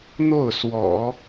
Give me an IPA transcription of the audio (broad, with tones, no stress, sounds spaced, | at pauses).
n̪ o˥˩ ʊ̯ s w ɔ̰˨˩˦